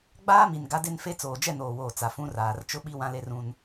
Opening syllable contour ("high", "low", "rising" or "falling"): high